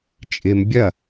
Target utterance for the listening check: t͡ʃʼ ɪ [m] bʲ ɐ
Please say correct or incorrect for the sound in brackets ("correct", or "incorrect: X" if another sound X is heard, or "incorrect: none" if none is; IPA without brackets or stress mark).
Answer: correct